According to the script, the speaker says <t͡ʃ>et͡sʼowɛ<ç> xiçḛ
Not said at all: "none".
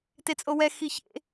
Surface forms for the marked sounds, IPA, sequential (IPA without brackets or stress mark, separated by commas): t, none